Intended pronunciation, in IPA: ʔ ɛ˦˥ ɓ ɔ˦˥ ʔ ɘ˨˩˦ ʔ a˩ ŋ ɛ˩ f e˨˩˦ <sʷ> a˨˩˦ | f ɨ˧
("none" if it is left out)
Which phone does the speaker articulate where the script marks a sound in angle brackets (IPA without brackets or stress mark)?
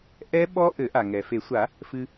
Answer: sʷ